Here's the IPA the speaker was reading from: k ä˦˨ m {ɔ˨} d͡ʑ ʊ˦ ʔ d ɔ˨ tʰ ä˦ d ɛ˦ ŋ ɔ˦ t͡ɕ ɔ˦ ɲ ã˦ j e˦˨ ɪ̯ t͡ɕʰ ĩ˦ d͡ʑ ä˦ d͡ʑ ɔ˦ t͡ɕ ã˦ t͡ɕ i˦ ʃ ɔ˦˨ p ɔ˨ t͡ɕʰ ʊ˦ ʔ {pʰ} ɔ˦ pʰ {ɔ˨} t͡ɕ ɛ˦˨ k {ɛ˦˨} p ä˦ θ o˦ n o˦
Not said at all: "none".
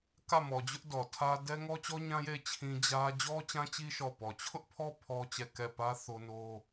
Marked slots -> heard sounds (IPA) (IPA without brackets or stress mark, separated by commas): ɔ˨, pʰ, ɔ˦, ɛ˦˨